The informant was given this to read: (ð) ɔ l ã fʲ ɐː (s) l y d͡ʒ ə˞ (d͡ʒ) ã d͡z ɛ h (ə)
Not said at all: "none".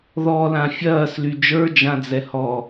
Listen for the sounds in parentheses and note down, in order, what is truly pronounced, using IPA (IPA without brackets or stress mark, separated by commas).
ð, s, d͡ʒ, ɔ